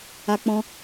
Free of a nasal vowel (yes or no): no